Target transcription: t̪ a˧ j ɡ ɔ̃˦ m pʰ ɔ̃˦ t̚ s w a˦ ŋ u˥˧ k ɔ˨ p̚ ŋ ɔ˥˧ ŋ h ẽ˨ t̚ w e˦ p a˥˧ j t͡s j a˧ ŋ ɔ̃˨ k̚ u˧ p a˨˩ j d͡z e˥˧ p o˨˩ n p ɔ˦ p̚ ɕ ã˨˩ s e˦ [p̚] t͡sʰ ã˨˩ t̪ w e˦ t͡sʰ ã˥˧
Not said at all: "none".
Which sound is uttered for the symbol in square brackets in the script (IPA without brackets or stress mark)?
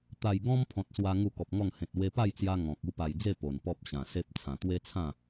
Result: p̚